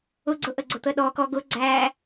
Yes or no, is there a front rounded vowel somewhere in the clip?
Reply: no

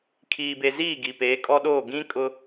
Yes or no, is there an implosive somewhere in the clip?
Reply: yes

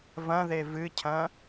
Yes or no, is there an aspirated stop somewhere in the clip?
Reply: yes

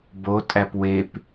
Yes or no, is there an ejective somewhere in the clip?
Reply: yes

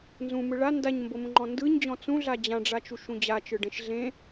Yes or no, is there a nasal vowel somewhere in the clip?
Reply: yes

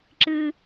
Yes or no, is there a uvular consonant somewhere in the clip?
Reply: no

